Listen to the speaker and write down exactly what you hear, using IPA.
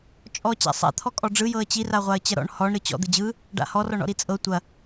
t͡ʃʼ ɔ t͡ɕ a̰ sˤ a̰ t̪ʰ ɔ kʼ ɔ ɖ͡ʐ ɯ j ɤ ə̯ t͡ɕ i r a ʁʷ a ə̯ t͡ɕ ɐ ɾ ɔ̰ ɳ h ɔ ɳ ɾ ɯ t͡ɕ ɔ̰ d̪ ɯ d͡ʑ ɯ | ɖ a̰ h ɔ r ɔ ɳ ɔ̰ ɾ i t͡sʼ ɤ tʷ ɐ

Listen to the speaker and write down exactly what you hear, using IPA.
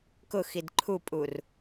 k ʊ x i d ǃʰ u pʼ u r

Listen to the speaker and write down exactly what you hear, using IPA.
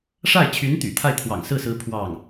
ʂ a˥˩ ɪ̯ t͡ɕʰ y˧˥ n t̪ y̰˨˩ t̪ʰ a˥˩ ɪ̯ t̪ʰ w ɑ̰˨˩ ŋ s ɹ̩˥˩ s ɹ̩˧˥ pʰ w ɑ˥˩ ŋ

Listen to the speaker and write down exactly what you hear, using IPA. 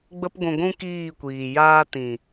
ɡ͡b ə˦ p ɡʷ ũ˧ ɡʷ ũ˦ k iː˦˨ kʷ iː˨ j aː˧ t ĩ˨

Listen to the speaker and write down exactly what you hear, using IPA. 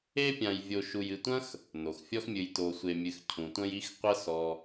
e˦ pʲ ã˨ j vʲ o˨ ʃ u˨ j ɨ˨ tʷ ɐ̃˥ x | n o˩ x fʲ ɔ˦ x mʲ ɨ˨ j t o˨ sʷ e˨ mʲ ɨ˨ x cʰ ũ˩ tʷ ɐ̃˦ j i˦ x qʷ ɐ˦ s ɔ˨

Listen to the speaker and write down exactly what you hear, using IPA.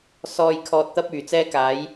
s ɔː˨ j kʰ ɔː˨ t̚ t̪ ɐ˧ p̚ yː˨˩ t͡s ɛː˧ k aː˨˧ j

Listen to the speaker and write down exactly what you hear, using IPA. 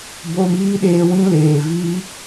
b o˧ m iː˦ ɗ eː˧ w ĩ˦ l eː˨ v i˦

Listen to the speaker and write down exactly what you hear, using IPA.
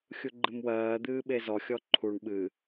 xʲ u ɡ͡ǃ ɨ m w ɜː d̪ ɨː ɓ e z ɔ xʲ ɔ ǃʰ u ɳ ɓ ɨ

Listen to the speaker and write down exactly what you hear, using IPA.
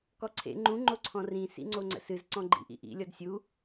k ɔ ǀʰ ḛ ŋ͡ǃ ũ ŋ͡ǃ o ǀʰ ɔ̃ r ĩ s ḭ ŋ͡ǀ o ŋ͡ǀ ə̰ s ɨ z ǀ ɔ̃ ɡ͡ǃ ḭ ʔ ḭ ʔ ḭ lʲ ɔ d sʲ u

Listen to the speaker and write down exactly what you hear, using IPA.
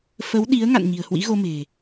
f ə˨˦ w ɗ i˨˦ ə̯ ŋ a̰˧˨ n ɲ i̤˨˩ ə̯ h w ḭ˧˥ ɣ o˧ m e̤˨˩

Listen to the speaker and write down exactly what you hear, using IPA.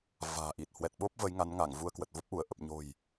v a̤ː˨˩ ʔ i˨˩ t̚ h w ɛ˨˩ t̚ ɓ o˦˥ p̚ v ə˨˦ j ŋ a˨˦ n ŋ a˧˩ ŋ v u˧ ə̯ k w ə˨˩ t̚ v o˦˥ p̚ ʔ u˧˩ ə̯ ʔ ə˨˩ p̚ ɲ o̤˨˩ j

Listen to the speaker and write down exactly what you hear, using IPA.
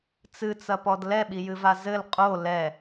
t͡s ɨ t͡s ɐ p ɔ d l ɛ ɓ i j ɨ v a z ɘ l qʼ o l ɛ

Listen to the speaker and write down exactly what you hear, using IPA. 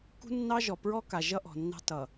k ṳ˦ nː ɑ˦ ʒ ɔ˨ p ɹ ɔ˦ k a˨ ʒ ʌ˦ ʔ ɔ̤˨ nː ɑ̤˦ t ʌ˨

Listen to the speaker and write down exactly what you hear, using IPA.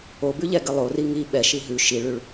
o b ʉ ʎ ɛ ɡ ə lˠ o r i ŋ i ɓ ɛ ʃ i ɦ ʉ ʃ i ɭ ʉ ɭ

